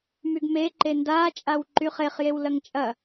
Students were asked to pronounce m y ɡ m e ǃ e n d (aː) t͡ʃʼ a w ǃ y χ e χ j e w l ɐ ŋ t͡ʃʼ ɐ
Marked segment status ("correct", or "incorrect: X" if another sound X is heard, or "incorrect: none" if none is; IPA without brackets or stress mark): correct